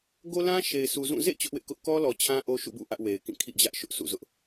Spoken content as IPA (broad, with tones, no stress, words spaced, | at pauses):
ɡo˦lã˦ ʃe˨ɪ̯sʰu˨zũ˦˨ zḛ˦˨ t͡ɕʊ˦ʔwɪ˦ʔkʊ˦ʔ kɔ˦lɔ˨ t͡ɕʰã˦ʔo˦ ʃṵ˦˨bṵ˦˨ ʔä˦ʔwe˨ɪ̯kĩ˦˨ kʰḭ˦˨d͡ʑä˦ʔ ʃʊ˦ʔsʰṵ˦˨zʊ˦ʔ